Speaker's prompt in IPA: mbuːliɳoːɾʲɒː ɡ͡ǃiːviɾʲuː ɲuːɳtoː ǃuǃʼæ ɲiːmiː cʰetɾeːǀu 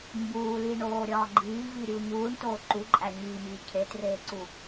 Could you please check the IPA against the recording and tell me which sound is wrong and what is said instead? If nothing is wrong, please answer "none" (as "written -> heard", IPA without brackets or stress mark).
ɾ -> r